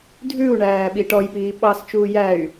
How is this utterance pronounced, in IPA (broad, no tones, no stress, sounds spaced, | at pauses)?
dʱ ʉ u̯ ɳ æː ɓ i ʈ ɔ j p iː ɓ ɑ s t͡ʃ uː j æ y̯